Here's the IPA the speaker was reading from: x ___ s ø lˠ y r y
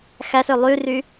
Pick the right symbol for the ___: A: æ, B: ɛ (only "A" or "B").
A